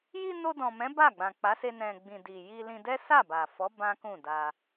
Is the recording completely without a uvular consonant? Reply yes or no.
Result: yes